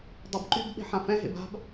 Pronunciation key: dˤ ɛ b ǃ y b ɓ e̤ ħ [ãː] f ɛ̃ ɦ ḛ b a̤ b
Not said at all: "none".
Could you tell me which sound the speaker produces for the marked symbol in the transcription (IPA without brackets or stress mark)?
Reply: ã